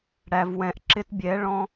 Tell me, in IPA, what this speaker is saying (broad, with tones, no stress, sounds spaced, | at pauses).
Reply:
ɽ æ˨ v w ɛ̃˨ ʔ ǁ ɪ˦ t bʲ ɛ˨˦ ɭ ɔ̃˦